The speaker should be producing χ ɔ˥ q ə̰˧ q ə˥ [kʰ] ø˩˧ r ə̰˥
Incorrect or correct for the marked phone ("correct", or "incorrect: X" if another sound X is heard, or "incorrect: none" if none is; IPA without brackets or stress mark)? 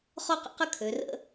correct